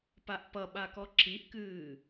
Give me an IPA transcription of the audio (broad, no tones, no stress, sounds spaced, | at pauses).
p a ʔ p ʌ ɓ a k ɔ ǁ i ʔ k ɨː